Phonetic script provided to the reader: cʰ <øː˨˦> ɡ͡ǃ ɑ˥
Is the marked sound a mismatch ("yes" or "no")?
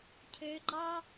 no